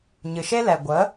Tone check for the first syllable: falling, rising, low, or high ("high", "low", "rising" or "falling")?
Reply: low